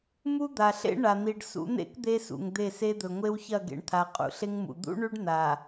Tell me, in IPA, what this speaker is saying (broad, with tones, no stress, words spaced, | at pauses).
mu˦d̪a˨ɬḛ˦ ɳa˨n̪i˨ɖ sṵ˨˦n̪ḛ˦k d̪e˦sṵ˨ŋd̪e˦˨se˦ d̪ɵ˨ ŋʷe˦wçɐ˦˨ɡḛ˨ɳt̪ʰa˨ qʼṵ˨ɬe˦ŋmṵ˨ d̪ṵ˦ɳʉ˦ɖ n̪a˨